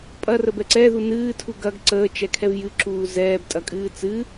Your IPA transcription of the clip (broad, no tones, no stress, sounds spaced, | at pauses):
pʼ ɐ r ə b ɛ ǀ ɛ ð u n ɨː tʰ u ɡ ɐ ɡ ǀ əː t͡ʃ ɛ kʰ ɛ v j ɨ ǁ uː z ɛː b tʼ ɐ kʼ ɨː t͡s ɨ